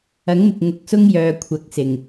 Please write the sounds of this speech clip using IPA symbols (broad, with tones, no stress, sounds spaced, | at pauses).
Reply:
ɐ˨˥ ŋ m ɪ˨ k̚ ŋ ʊ˨ k̚ s ʊ˥ ŋ j œː˨˧ kʷʰ ɐ˨˥ k̚ s ɪ˨˩ ŋ